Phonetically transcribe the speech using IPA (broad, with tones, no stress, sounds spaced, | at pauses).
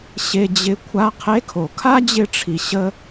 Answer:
ɕ e˧ d͡ʑ ɪ˧˥ kʷʰ a˧˥ qʰ e˧˥ kʰ o˩ kʰ a˥ d͡ʑ ɪ˧ ʈ͡ʂʰ i˩ ɕ ə˧